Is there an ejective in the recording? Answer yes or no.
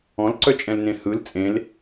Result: yes